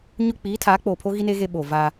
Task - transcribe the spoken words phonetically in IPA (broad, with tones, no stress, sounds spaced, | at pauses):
ɲ ʊ˦ k͡p iː˨˦ tʰ aː˨˦ k͡p oː˨ pʰ o˦ ɣ i˦ n eː˦ ɣ e˦ ɓ oː˨ v a˦